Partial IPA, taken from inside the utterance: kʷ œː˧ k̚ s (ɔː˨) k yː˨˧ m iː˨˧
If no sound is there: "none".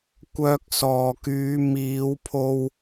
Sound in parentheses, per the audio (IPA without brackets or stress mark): ɔː˨